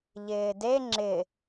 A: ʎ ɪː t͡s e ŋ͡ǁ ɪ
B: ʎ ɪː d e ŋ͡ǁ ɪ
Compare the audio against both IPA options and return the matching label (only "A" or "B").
B